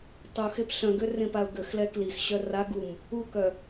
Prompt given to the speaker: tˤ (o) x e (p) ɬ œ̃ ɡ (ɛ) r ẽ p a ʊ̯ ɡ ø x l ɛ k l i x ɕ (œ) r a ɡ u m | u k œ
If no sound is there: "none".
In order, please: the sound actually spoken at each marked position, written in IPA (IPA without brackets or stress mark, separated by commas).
o, p, ø, œ